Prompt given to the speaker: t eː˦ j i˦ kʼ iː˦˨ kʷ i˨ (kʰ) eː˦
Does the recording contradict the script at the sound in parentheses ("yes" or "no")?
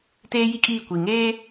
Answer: yes